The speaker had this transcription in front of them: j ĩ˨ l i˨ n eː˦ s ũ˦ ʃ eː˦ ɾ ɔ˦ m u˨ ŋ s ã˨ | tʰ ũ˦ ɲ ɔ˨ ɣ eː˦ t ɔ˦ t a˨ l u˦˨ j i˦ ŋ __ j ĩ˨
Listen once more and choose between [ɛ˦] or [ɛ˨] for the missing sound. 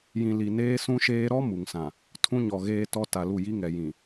ɛ˨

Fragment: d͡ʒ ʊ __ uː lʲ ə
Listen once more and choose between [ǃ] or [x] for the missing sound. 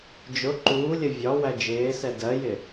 ǃ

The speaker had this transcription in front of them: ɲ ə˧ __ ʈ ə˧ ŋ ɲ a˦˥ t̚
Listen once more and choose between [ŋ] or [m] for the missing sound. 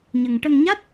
ŋ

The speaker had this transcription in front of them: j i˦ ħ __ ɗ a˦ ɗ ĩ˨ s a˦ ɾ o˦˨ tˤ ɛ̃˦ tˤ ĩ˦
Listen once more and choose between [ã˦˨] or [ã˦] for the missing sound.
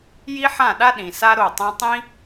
ã˦˨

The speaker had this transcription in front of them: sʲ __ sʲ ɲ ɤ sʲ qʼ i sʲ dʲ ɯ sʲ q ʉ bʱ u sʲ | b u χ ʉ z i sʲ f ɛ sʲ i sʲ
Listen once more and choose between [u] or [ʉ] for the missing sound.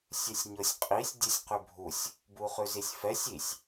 ʉ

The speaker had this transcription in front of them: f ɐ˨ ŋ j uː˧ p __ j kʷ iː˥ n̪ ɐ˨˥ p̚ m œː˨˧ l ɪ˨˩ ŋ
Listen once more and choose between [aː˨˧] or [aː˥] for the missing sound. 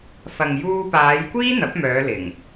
aː˨˧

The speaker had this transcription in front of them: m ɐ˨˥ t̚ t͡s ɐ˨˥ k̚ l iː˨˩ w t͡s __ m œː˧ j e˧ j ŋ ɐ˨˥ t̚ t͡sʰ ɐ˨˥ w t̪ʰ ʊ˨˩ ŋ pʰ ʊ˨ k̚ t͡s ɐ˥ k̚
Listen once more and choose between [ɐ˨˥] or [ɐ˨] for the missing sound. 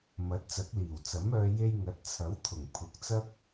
ɐ˨˥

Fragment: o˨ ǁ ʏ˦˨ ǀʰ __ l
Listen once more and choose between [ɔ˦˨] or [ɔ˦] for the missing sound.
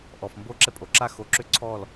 ɔ˦˨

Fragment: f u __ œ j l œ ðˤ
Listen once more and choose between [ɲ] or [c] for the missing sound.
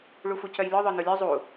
c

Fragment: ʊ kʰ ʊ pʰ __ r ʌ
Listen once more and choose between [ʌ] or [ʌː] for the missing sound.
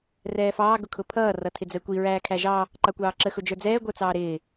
ʌː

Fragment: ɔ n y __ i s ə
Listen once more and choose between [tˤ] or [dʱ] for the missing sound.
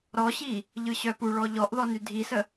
dʱ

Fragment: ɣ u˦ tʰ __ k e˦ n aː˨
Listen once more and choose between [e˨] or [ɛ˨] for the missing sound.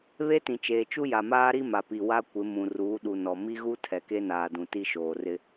ɛ˨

